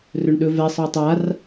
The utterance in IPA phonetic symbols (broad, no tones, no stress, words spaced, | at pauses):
rɵɳɗɵvɛ sˤə˞tˤar